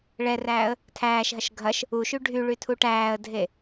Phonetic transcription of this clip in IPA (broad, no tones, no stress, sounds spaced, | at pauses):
ɭ ɛ r æː ə̯ | tʰ æː ʃ ɦ ɐ ʃ ɡʱ ɐ ʃ | u ʃ y ɖʱ y ɭ y tʰ u ʈ æː ə̯ dʱ e